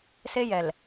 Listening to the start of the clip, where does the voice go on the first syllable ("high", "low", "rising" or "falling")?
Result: high